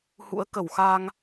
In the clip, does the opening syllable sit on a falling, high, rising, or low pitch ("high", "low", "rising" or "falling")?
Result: rising